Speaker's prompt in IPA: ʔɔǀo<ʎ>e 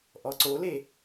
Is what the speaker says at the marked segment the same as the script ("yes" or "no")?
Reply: no